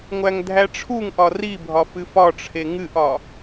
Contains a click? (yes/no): no